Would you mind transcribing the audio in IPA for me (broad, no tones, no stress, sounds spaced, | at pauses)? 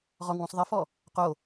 ʁ ɔ ŋ w ũ sˤ ðˤ e f ɔ | q o